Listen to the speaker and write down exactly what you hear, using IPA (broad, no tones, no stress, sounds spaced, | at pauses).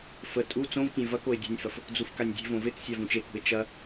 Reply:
f ə tʼ u t͡s õ v tʲ ẽ v ɐ k o ɪ̯ dʲ ṳ nʲ f ɐ f | d͡z u f k a nʲ dʲ e̤ v õ v e k sʲ a v ũ t͡ʃ e k ṳ ɪ̯ t͡ʃ ɐ